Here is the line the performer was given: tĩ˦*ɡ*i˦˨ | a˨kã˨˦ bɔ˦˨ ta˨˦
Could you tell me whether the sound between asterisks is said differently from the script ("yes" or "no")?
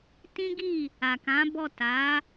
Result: no